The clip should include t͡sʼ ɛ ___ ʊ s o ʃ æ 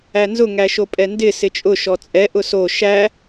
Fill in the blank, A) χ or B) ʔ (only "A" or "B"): B